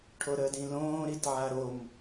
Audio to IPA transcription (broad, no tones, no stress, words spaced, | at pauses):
ʈʰoɾəːdĩlõː ɾitʕaɾom